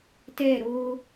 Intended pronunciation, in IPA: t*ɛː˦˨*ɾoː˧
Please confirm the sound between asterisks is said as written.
yes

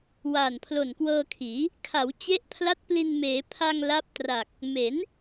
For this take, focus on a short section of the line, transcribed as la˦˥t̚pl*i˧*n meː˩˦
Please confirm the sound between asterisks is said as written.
yes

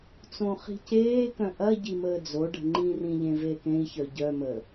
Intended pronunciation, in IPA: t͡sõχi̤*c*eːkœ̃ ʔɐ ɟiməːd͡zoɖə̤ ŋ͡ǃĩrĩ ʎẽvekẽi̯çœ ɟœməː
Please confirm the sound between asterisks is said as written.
yes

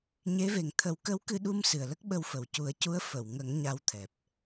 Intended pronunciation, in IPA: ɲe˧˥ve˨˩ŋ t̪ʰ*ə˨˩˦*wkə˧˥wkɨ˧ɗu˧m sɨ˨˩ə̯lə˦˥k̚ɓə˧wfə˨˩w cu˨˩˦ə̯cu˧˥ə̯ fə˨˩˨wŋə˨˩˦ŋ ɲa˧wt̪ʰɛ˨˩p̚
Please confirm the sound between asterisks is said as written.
yes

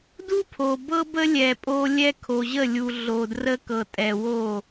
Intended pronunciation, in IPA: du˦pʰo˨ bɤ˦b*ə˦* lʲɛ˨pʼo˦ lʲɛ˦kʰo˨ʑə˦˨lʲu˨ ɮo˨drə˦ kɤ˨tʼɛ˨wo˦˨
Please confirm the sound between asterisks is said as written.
yes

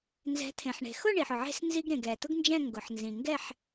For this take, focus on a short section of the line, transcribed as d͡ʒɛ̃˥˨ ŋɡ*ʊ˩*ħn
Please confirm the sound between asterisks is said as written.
yes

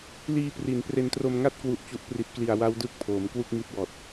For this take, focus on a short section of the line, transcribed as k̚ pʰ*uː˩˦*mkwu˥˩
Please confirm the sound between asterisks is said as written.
no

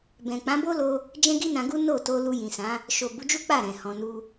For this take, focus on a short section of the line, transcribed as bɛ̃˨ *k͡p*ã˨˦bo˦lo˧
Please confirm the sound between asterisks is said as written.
yes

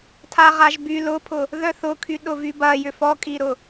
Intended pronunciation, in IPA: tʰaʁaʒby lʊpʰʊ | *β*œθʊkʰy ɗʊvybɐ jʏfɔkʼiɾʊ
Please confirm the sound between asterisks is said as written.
no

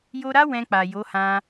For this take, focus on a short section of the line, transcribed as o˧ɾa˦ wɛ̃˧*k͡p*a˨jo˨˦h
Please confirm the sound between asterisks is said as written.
yes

